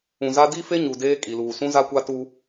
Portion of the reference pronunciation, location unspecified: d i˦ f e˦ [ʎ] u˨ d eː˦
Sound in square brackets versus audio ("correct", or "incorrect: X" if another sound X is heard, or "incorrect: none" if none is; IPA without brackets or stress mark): incorrect: ɲ